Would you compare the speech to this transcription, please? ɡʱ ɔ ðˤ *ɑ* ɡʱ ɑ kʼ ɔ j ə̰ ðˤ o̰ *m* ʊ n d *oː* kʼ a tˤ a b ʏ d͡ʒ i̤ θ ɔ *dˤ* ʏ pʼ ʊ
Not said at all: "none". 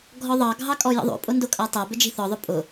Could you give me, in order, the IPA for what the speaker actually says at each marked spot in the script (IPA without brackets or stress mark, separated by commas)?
ɑ, pʼ, o, ðˤ